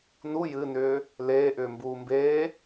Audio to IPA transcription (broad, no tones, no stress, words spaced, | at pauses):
nu jɨnʏː | leːʔʏːmbuː mbeː